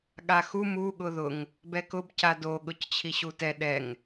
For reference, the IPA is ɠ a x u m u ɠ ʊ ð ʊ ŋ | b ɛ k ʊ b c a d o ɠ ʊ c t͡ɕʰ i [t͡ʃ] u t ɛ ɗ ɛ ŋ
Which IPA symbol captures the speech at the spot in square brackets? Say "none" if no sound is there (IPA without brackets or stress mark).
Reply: ɕ